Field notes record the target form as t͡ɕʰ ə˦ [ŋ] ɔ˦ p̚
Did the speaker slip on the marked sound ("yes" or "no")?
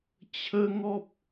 no